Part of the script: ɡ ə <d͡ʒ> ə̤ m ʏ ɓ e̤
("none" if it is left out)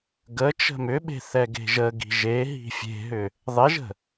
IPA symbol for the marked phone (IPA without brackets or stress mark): t͡ʃ